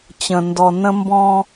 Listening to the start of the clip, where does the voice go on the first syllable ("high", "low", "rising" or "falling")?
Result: low